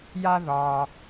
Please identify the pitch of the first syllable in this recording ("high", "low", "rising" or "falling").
high